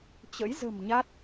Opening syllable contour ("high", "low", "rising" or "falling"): rising